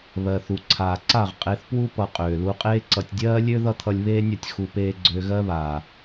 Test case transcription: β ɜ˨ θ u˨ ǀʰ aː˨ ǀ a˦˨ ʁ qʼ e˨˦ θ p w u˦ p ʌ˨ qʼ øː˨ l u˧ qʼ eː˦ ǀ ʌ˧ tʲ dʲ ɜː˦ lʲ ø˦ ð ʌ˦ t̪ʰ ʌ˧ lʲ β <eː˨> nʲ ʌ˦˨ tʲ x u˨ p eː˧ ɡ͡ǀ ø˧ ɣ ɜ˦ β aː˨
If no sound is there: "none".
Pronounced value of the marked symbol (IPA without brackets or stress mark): eː˦